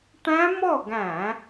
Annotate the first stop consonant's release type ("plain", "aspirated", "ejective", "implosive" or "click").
plain